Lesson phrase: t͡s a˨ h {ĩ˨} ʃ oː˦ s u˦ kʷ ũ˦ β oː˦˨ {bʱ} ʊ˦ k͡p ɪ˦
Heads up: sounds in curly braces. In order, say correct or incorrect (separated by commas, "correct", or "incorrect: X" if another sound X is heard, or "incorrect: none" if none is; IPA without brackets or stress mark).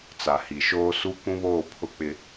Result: incorrect: i˨, incorrect: pʰ